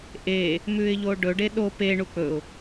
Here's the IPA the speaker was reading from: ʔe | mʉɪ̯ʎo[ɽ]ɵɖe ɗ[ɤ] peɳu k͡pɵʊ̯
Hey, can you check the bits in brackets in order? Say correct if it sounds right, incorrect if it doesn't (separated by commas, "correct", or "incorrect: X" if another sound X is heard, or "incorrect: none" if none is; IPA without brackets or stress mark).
incorrect: ɖ, incorrect: o